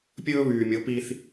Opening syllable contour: high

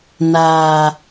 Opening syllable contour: low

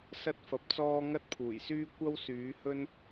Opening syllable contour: high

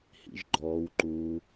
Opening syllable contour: low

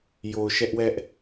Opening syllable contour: low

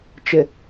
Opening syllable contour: low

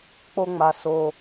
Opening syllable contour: high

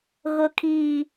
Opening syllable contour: high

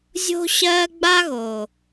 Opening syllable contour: high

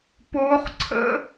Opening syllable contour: high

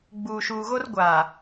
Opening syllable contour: low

